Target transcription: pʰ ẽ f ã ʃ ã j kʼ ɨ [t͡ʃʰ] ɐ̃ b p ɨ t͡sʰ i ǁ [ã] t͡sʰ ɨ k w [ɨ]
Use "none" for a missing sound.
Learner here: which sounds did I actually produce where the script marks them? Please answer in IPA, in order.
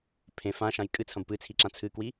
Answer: t͡sʰ, ã, i

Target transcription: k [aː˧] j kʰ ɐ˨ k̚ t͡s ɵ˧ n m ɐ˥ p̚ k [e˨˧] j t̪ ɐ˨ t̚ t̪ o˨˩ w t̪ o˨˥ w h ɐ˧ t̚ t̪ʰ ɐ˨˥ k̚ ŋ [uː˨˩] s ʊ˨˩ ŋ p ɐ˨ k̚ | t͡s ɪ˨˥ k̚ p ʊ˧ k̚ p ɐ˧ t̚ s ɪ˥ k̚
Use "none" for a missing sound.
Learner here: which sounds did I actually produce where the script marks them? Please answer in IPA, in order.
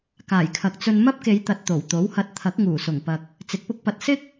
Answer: aː˨˩, e˨˧, uː˨˩

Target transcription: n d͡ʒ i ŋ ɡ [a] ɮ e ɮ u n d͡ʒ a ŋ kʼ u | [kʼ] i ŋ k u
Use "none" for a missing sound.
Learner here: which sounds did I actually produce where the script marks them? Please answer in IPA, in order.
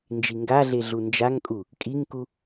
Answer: a, kʼ

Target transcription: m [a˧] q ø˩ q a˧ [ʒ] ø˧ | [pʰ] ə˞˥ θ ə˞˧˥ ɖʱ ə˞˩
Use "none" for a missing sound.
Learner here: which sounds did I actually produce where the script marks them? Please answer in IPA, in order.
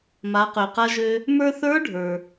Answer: a˩˧, ʒ, m

